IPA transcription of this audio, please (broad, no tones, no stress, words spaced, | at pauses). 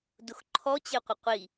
dʊxǃʰɔt͡ɕeqʷɪ qʷi